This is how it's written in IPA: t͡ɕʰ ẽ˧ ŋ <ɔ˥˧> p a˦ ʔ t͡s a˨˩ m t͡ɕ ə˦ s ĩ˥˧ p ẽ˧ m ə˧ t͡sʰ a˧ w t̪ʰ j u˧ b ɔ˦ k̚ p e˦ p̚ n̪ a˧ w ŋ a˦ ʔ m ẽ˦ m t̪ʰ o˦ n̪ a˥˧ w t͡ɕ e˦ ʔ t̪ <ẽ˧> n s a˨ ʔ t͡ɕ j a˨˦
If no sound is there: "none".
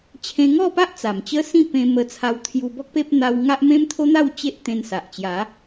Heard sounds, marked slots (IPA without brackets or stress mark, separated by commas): ɔ˥˧, ẽ˧